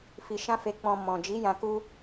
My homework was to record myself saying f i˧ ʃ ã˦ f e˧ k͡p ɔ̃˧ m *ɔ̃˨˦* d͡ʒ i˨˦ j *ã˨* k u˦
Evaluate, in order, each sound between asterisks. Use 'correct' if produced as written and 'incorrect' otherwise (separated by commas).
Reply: incorrect, incorrect